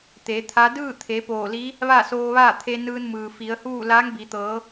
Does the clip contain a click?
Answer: no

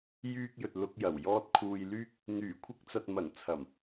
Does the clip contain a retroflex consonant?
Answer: no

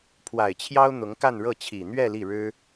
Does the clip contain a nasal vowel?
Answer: no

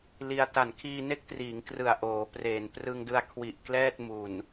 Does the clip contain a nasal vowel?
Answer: no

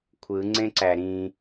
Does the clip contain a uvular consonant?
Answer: no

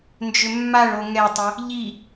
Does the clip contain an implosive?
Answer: no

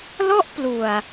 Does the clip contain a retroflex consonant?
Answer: no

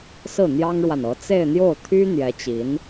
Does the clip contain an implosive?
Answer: no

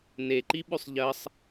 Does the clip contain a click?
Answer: yes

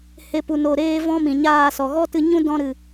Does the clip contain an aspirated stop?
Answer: no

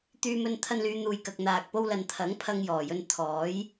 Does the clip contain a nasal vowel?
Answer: no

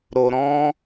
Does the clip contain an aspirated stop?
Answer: no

